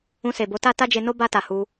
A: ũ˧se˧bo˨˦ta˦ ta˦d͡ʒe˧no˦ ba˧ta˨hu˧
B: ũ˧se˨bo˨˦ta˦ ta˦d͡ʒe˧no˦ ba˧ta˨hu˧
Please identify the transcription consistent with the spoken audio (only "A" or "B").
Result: B